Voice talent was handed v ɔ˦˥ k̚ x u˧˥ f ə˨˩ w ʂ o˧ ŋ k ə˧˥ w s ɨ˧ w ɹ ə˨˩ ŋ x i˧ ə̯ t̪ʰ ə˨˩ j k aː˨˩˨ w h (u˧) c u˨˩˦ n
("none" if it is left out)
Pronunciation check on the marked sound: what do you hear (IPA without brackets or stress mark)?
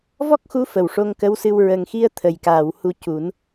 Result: u˧